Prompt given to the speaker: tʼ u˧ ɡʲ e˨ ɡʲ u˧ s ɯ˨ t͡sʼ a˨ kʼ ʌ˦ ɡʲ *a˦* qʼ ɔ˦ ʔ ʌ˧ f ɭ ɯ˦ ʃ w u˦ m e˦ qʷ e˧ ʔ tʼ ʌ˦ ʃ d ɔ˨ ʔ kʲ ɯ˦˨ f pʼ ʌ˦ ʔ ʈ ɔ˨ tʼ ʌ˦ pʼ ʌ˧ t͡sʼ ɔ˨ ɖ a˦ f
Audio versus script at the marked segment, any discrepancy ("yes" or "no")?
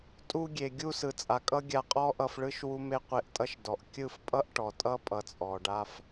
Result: yes